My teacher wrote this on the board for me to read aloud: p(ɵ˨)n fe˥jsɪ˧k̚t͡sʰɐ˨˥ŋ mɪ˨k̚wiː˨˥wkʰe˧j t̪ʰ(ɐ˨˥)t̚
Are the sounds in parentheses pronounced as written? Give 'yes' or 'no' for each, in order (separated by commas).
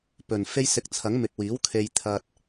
yes, no